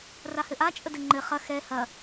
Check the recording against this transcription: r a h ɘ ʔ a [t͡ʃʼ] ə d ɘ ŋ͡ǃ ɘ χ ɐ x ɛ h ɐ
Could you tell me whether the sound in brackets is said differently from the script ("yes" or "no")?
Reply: no